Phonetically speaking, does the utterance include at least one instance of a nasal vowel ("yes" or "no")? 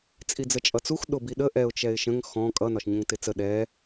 yes